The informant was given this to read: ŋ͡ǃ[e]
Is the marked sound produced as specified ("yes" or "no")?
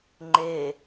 yes